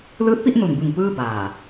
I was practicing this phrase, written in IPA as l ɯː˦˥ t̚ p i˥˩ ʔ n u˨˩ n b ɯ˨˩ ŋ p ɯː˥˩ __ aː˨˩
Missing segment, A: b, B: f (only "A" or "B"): A